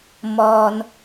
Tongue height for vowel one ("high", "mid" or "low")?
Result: mid